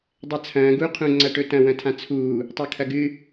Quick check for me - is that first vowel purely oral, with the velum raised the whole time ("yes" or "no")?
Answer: yes